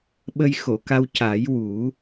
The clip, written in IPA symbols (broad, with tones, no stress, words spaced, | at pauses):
ɓə˧jxo˨˩˨ka˧w ca˨˩˦jwu˨˩˦